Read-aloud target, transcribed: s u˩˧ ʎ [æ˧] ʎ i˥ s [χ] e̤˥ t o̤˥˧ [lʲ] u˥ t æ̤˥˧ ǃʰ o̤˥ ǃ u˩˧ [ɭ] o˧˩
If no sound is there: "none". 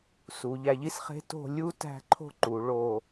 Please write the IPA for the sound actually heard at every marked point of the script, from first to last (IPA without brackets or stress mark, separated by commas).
æ˧, χ, lʲ, ɭ